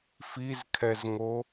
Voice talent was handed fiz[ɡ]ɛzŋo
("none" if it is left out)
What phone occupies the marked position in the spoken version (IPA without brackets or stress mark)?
kʰ